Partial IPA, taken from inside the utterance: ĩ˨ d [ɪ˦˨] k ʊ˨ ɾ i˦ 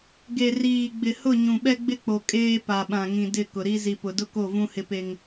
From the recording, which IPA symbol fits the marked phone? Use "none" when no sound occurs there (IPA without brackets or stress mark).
ɪ˦˨